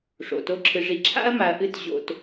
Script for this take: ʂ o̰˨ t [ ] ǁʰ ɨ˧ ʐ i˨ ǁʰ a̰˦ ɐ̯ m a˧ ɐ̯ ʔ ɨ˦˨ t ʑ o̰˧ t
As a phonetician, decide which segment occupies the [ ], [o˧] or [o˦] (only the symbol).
o˦